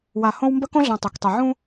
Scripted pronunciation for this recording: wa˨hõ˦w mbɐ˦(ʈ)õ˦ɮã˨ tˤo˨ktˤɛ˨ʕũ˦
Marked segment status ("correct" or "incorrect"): incorrect